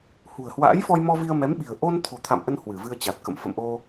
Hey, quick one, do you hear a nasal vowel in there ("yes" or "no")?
no